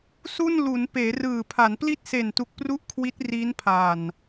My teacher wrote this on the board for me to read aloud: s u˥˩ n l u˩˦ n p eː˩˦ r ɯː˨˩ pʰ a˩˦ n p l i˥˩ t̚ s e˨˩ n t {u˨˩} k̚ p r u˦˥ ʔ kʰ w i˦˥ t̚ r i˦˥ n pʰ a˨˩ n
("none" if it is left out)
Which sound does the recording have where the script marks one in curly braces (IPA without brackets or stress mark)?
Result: u˨˩